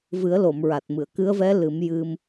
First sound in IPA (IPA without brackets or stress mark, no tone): v